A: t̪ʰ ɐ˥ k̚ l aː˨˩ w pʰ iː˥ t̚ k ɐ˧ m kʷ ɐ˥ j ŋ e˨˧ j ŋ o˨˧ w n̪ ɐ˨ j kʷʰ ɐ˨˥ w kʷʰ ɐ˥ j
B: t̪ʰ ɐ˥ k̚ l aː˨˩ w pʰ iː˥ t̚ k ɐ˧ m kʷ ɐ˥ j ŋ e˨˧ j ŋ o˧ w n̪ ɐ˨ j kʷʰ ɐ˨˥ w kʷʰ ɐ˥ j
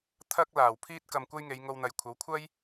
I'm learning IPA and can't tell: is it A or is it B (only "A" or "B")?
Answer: B